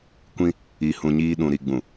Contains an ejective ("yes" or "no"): no